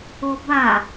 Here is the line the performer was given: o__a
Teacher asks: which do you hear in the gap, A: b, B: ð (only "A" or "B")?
A